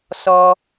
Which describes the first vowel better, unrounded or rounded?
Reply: rounded